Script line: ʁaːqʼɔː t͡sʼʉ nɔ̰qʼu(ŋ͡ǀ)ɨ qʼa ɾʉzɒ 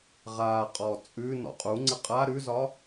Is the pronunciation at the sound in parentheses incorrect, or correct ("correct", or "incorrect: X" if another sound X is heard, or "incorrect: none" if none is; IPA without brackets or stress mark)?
correct